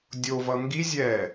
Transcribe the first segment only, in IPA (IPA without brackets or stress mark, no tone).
dʲ